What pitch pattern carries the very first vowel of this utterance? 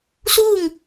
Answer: falling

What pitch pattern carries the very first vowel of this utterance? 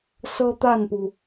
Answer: high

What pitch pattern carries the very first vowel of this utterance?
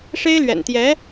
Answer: high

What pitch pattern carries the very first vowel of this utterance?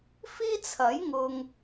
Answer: high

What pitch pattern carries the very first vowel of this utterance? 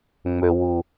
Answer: low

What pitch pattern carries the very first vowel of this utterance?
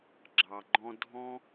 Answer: low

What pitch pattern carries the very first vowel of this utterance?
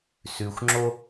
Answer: low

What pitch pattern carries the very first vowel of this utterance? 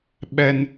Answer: high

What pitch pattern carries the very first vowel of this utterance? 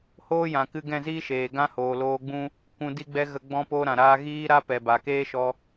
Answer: high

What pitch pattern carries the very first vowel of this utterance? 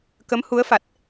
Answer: rising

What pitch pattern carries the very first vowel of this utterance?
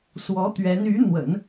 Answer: rising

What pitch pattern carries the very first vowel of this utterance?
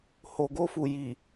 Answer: low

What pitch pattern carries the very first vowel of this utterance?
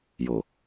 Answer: low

